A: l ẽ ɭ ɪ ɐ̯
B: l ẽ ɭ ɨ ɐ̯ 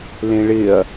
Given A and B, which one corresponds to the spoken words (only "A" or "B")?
A